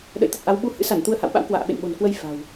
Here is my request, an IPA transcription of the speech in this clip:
ɗ ə̰˧˨ j t̪ ə˨˩ t̚ ʔ a˨˦ w ɓ u˧ h ɨ̰˧˥ s a˧˩ n t̪ u˧ ə̯ h a̰˧˨ w ɓ a̰˧˥ w k w a̰ː˧˨ ɓ ḛ˧˨ n ɓ o̤˨˩ n k w ə˧ j f a̤˨˩ w

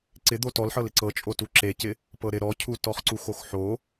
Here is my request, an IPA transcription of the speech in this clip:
ǀ ɪ d̪ o t ɔ l ħ ɤ l ɪ ǀ ɤ t͡ʃʼ o t u ǁ e c ɪ | p ɤ ɾ ɪ ɾ ɔ cʰ u t ɔ χ ǀ u x o x ħ o

